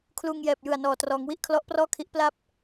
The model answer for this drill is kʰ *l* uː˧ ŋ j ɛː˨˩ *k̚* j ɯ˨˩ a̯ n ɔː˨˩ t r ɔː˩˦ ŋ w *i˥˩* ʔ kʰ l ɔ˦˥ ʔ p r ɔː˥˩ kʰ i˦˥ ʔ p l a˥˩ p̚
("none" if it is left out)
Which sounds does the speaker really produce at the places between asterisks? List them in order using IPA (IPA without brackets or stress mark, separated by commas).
l, p̚, i˥˩